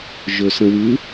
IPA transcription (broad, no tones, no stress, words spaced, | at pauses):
ʒɵsə̃wɯ